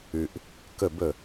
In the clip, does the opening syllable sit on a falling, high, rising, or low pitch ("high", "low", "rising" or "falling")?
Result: low